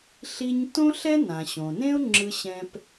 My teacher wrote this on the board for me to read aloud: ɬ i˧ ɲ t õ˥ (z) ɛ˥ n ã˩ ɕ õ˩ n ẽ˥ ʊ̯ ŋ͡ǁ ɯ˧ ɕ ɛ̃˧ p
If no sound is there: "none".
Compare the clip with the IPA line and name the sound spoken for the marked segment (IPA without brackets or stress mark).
ɬ